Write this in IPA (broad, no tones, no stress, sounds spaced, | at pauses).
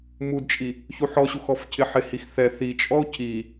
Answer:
m u d t͡ʃʼ i | ç u ħ ɔ ɕ u x ɔ f cʰ ɪ ħ ɪ h i x θ ɛ θ i t͡ʃʼ ɔ o̯ cʰ i